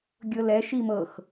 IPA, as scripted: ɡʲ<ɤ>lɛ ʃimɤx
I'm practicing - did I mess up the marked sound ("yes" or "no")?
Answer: no